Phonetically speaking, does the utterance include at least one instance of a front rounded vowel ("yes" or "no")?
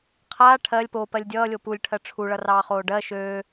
yes